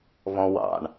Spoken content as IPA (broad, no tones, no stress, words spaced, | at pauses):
βɔ̃wɑ̰ɳ